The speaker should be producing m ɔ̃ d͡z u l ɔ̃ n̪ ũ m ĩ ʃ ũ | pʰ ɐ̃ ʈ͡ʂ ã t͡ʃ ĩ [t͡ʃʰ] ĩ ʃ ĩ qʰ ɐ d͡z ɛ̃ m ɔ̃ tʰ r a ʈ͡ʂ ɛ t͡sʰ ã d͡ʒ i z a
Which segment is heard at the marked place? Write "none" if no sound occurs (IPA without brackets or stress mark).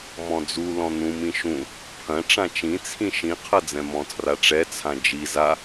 t͡sʰ